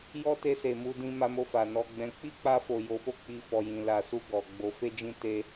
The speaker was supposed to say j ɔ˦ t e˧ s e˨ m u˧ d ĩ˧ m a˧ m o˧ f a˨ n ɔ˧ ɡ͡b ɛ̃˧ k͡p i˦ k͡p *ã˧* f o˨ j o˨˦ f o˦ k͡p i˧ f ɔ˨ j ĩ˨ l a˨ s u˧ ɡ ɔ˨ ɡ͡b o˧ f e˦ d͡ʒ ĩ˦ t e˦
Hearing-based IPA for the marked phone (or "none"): a˧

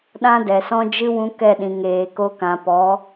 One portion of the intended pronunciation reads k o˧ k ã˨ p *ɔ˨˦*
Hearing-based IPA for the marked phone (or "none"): ɔ˨˦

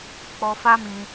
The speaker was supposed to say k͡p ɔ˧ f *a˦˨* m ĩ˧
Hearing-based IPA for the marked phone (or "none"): a˦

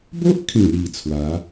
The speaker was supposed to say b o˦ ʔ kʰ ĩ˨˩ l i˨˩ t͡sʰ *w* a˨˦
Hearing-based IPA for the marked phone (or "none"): w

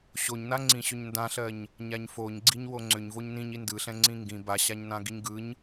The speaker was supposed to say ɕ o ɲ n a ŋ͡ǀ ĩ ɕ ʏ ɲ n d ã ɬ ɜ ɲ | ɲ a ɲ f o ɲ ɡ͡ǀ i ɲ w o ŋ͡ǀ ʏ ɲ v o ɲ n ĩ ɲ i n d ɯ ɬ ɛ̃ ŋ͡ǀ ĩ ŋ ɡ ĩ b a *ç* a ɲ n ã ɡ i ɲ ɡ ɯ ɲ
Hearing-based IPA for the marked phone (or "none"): ɕ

